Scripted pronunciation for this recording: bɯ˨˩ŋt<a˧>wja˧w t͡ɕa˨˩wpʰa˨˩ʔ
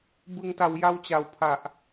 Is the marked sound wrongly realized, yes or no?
yes